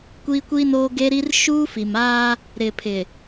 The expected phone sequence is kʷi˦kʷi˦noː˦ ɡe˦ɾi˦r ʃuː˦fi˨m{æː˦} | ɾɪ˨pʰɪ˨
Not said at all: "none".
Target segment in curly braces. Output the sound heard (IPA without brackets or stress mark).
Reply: aː˦